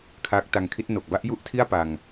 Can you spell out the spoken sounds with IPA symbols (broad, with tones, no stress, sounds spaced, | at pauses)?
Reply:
kʰ aː˦˥ k̚ t a˧ ŋ kʰ i˦˥ t̚ n o˨˩ k̚ b a˦˥ ʔ j u˥˩ ʔ tʰ i˥˩ a̯ p a˧ ŋ